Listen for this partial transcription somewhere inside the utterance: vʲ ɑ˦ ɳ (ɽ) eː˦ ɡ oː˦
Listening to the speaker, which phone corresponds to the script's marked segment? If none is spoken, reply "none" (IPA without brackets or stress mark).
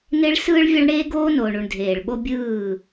ɽ